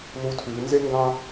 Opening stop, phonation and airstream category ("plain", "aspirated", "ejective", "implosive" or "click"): aspirated